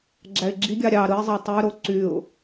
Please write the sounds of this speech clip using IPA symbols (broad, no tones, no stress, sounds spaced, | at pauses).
ɡ͡ǁ æ ɪ̯ ɡ͡ǁ i ɡʲ ɑ ɾʲ ɑ ɾ ɯ ɪ̯ zˤ ɑ tˤ y ɾ o ǀ y ʊ̯